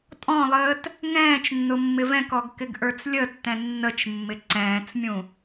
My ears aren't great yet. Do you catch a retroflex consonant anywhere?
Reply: no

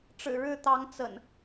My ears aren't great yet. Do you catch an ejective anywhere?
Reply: no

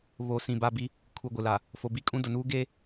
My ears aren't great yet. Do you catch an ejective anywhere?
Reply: yes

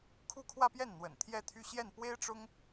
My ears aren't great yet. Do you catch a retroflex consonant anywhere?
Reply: yes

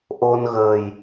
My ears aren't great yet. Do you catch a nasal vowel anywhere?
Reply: no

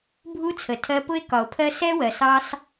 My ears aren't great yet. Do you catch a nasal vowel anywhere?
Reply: no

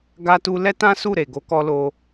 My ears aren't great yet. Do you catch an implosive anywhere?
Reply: no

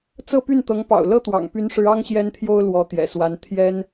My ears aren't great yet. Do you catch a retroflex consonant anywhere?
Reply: yes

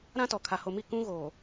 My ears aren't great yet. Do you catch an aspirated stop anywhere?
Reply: yes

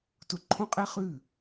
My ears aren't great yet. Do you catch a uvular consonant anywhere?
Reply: yes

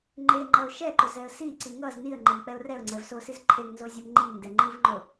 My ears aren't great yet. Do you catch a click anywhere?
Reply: yes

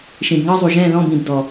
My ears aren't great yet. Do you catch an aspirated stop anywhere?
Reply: no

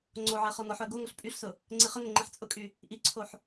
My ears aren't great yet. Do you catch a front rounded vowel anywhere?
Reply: yes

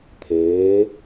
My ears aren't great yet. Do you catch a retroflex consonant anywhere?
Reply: no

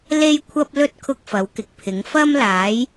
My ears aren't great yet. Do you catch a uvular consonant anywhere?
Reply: no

